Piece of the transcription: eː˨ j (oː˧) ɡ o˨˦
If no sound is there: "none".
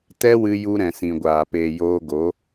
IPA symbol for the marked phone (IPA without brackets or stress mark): oː˧